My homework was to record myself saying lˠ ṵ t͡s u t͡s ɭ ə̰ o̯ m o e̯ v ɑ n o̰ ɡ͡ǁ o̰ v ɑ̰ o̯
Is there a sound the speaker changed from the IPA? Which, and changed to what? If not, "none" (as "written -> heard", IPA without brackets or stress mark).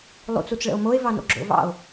none